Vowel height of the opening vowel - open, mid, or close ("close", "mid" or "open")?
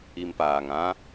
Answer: close